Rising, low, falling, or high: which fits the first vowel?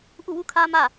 falling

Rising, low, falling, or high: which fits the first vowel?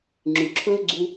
low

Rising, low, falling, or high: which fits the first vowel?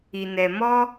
low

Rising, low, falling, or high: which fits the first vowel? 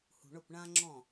low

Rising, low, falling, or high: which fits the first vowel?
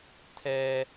high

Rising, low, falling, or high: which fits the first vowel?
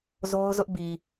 high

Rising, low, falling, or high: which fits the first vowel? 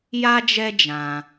high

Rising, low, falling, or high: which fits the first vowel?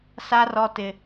high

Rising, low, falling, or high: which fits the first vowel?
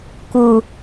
low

